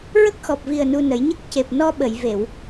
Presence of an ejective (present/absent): absent